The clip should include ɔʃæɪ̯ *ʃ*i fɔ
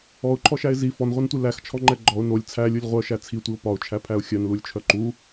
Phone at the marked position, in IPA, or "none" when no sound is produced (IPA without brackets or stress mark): z